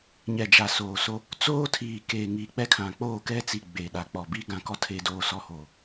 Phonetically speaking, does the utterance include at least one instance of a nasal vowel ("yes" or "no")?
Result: yes